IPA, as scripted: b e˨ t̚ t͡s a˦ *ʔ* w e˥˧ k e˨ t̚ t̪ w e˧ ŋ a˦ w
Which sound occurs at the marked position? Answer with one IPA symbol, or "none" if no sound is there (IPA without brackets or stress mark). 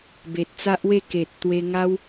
ʔ